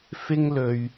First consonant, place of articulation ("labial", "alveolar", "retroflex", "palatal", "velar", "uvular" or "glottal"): labial